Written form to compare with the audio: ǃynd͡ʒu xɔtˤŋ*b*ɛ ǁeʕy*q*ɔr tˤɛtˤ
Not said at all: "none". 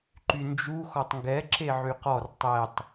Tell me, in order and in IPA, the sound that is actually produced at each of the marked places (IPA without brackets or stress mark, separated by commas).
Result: ɡ, q